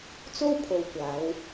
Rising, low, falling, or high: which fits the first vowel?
high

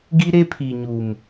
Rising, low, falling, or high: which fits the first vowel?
high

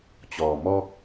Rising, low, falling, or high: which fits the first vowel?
low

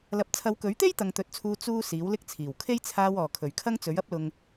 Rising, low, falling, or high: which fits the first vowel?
low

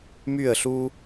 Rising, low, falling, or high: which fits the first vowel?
falling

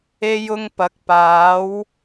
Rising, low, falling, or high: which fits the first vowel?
high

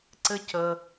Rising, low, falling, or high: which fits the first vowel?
high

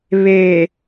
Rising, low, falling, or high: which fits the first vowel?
low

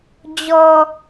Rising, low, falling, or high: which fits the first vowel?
low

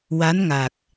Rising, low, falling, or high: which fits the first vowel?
rising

